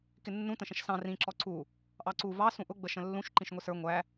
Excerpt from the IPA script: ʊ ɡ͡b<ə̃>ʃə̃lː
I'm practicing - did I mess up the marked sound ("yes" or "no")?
yes